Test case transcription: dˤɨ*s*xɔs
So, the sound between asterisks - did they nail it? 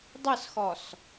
yes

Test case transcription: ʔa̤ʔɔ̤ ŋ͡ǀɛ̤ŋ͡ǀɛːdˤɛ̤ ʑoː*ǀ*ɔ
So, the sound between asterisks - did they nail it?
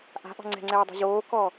no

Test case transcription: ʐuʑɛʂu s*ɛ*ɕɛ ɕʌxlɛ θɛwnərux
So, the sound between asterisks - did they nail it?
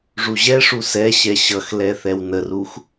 yes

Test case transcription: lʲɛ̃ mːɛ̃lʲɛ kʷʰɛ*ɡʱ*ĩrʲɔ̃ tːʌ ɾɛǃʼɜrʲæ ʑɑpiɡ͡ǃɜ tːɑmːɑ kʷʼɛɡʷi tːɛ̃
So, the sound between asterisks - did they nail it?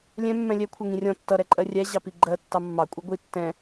no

